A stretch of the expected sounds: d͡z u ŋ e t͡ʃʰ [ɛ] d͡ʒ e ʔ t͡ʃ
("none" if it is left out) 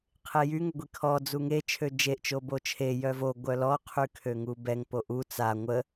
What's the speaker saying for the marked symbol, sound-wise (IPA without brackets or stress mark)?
ø